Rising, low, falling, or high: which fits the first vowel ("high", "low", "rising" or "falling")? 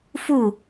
falling